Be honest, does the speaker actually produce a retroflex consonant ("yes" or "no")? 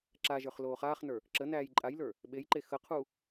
no